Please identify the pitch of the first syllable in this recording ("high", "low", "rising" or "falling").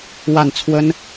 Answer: falling